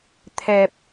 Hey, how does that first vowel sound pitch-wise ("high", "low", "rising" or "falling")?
low